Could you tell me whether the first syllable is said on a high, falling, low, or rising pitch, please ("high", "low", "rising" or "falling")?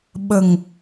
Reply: low